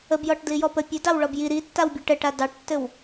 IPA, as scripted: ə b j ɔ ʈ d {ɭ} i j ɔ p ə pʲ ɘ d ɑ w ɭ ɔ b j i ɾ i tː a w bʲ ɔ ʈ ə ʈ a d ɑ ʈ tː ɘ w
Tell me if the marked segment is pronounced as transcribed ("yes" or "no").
no